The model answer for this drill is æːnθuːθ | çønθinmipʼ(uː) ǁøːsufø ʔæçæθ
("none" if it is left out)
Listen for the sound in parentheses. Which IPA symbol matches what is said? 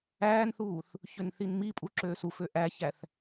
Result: u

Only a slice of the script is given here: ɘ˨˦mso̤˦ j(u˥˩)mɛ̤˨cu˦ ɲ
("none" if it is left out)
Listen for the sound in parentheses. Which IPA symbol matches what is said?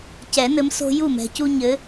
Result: u˥˩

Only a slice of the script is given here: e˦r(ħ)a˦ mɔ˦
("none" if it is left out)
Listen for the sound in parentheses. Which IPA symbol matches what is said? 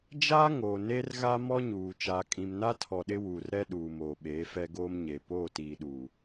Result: ɣ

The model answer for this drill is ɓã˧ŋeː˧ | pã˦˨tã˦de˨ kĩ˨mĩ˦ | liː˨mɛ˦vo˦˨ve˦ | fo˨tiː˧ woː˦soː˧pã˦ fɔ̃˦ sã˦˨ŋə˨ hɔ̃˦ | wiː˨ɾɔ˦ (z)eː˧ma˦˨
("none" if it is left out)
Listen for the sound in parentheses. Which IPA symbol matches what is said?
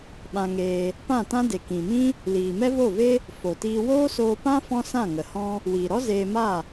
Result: z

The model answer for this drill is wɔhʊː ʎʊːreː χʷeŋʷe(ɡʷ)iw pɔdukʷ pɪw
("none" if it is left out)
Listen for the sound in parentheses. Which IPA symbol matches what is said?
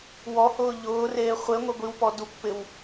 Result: ɡʷ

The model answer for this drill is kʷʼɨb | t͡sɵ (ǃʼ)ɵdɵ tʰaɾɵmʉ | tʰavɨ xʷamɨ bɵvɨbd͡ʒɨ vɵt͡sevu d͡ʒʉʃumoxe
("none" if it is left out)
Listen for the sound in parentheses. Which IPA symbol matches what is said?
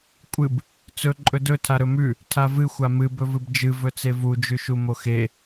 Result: ǃʼ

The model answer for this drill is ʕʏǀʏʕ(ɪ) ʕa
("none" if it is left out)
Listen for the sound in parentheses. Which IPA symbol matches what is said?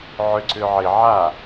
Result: ɪ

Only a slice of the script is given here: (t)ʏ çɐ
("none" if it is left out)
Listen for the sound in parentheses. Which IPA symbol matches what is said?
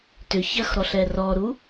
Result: t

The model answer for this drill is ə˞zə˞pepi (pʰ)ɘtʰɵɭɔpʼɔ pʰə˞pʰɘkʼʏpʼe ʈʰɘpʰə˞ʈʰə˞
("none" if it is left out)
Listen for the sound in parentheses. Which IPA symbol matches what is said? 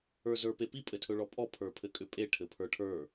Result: pʼ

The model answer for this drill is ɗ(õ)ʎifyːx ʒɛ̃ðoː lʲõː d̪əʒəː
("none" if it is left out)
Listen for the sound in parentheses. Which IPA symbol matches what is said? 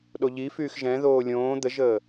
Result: o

